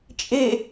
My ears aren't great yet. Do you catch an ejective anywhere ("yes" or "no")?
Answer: yes